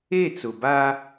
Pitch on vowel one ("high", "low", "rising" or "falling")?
falling